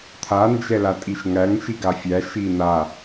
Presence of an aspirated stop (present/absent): present